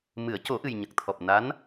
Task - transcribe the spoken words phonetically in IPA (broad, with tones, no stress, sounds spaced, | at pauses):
m ɨ˨˩˦ ə̯ c o˨˩˦ ʔ ɨ˨˩ j ɲ ə˨˩ k̚ t̪ʰ ɔ˨˩ p̚ n a˧˥ n